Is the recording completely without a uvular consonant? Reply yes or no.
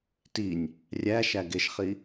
no